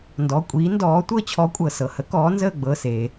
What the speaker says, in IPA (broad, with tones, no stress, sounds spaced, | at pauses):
n d ɔ˩˧˩ kʷʼ iː˨˥ n d ɔː˨˥ tʷ ɤ˦˨ t͡ɕʰ ɔ˨˥ kʷʼ ɤ˩ s ɤ˩ h ə˨˥ k ɔː˨˥ n z əː˦˨ ɡ͡b ɤ˩˧˩ s eː˩